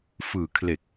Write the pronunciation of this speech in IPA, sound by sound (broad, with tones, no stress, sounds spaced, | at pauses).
f ɯː˨˩ kʰ l e˨˩ k̚